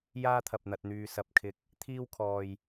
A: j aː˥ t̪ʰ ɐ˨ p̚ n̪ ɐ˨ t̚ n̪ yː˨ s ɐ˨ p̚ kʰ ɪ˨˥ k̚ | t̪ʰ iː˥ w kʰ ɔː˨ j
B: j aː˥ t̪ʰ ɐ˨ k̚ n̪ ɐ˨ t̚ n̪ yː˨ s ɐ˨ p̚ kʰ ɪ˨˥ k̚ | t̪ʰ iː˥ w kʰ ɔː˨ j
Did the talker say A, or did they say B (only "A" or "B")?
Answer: A